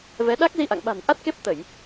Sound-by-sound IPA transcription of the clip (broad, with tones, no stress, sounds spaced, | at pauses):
v ɛ˨˦ ɗ a˦˥ k̚ z i˧ ʔ a̰˧˨ ŋ ɓ a̤˨˩ n ʔ a˦˥ t̚ k e˦˥ p̚ t̪ ə˧˩˨ j